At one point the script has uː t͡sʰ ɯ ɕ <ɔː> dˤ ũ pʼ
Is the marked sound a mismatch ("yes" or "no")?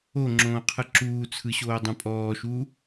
yes